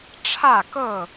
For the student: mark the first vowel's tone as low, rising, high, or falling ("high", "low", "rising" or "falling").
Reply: falling